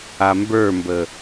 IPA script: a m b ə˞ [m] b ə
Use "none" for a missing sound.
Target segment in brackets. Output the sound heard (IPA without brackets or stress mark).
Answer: m